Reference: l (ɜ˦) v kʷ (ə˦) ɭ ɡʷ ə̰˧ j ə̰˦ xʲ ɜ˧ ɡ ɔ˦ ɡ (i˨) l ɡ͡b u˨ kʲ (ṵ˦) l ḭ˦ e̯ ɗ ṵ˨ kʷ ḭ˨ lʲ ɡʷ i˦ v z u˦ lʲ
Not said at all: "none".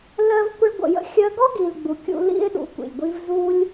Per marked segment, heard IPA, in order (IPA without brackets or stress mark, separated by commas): ɜ˦, ə˦, i˨, ṵ˧